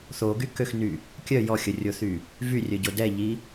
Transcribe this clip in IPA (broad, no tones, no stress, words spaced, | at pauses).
θoɡykøxny | kʲœ jɔxʲərʲoθy | vyrʲœɟo dɛʎi